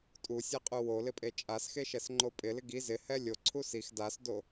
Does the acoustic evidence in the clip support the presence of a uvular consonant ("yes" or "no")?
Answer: yes